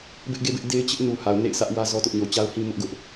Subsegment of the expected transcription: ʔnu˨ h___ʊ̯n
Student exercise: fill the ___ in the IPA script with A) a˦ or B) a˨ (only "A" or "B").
B